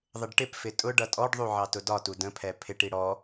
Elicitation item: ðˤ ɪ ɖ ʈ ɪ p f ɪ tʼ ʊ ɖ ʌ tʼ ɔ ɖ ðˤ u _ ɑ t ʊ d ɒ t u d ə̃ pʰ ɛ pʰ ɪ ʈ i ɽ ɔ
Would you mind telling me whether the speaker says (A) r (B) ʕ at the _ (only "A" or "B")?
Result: B